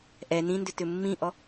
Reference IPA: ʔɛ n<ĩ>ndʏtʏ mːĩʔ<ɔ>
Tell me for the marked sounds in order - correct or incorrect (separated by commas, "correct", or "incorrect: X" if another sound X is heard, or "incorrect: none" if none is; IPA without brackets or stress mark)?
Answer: correct, correct